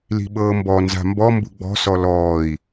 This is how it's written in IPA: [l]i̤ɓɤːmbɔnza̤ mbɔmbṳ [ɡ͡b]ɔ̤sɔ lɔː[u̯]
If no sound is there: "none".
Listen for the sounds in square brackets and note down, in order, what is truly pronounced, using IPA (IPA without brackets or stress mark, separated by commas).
l, ɡ͡b, i̯